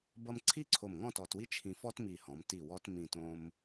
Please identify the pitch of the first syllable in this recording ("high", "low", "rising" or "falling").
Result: high